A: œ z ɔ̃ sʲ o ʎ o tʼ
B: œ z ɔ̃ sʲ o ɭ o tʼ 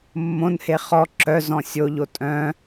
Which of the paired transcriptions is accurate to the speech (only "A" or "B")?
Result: A